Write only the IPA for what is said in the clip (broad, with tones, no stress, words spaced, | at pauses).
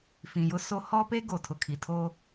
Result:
fĩ˨jʊ˦so˦ hɔ˦pe˦ ɡo˨ tʰʊ˨kʰi˨ tʰo˦